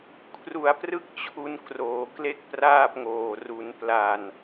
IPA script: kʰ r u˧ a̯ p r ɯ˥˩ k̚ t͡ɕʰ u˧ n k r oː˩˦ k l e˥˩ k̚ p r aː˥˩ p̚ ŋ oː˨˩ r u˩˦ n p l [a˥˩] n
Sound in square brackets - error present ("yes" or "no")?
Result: yes